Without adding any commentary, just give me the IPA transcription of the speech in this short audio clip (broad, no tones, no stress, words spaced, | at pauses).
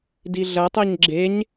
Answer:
diɮɐtˤɛɲ ɡ͡ǁeɲ